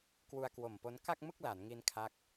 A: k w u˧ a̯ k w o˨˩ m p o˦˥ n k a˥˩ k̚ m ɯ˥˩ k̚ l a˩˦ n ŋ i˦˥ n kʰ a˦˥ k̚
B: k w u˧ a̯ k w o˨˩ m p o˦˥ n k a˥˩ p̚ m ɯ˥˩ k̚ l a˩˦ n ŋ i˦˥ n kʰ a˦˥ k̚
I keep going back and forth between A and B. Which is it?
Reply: A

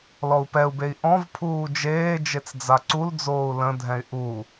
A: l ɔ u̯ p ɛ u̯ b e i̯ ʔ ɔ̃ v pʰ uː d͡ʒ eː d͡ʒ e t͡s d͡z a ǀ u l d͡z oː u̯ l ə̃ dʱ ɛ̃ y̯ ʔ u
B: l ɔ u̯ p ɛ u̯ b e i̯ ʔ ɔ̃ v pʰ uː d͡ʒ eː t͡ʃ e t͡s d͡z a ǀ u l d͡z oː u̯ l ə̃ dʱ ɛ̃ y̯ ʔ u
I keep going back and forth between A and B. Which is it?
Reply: A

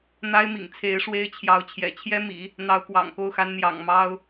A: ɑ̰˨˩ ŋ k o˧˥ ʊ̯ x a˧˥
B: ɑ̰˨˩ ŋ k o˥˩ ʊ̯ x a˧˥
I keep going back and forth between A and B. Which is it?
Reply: B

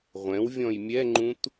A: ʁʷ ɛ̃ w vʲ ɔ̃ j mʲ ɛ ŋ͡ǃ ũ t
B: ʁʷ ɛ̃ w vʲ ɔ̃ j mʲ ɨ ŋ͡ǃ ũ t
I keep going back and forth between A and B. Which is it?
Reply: A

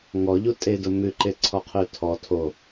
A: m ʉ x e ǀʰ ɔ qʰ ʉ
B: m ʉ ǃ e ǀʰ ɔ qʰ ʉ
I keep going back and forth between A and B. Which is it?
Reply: B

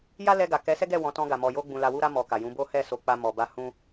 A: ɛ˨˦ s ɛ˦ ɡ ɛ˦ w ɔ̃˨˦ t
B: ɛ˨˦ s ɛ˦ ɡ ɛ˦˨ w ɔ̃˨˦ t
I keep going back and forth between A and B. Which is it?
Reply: B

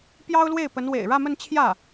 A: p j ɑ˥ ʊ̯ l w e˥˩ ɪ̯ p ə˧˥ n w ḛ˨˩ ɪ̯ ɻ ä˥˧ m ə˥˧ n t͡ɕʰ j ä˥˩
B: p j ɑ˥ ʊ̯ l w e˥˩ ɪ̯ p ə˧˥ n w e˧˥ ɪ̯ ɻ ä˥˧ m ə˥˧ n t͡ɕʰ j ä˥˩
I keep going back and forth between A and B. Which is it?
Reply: A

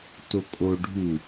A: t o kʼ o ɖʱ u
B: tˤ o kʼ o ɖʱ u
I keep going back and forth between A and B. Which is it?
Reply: A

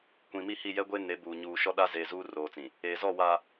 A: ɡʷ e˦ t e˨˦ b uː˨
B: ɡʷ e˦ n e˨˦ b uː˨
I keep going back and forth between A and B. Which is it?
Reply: B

